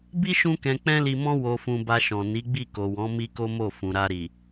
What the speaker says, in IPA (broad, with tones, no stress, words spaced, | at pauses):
bi˦ ʃũ˦kɛ̃˧ k͡pɛ̃˦li˧mɔ̃˦ wo˧fũ˧ ba˧ʃɔ̃˨ ni˨˦ɡ͡bi˦˨ko˨wɔ̃˨˦ mi˦ko˦mo˦˨ fũ˨ɾa˧ ɾi˨